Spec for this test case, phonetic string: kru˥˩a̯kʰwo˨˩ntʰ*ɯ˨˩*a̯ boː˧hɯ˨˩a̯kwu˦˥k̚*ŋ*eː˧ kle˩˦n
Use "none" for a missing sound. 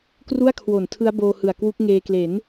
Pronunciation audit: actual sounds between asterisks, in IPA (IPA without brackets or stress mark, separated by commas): ɯ˦˥, ŋ